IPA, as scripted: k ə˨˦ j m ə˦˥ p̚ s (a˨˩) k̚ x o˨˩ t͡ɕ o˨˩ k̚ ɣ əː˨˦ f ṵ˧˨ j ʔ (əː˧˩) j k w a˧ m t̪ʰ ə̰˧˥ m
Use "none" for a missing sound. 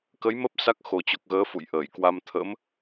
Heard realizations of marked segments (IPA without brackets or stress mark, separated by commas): a˦˥, əː˧˩